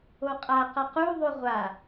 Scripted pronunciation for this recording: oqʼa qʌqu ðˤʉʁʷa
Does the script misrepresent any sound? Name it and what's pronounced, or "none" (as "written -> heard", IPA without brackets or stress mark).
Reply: none